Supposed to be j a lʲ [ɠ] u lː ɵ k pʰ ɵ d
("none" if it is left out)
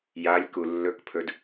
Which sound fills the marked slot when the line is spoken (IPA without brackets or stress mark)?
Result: k